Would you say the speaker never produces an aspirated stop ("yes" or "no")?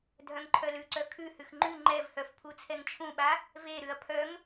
no